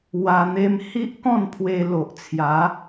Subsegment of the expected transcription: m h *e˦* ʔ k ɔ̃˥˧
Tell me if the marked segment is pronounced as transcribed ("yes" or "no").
no